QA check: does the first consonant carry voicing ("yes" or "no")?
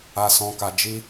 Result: no